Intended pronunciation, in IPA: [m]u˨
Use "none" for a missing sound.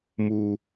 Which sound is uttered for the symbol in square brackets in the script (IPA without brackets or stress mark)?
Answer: m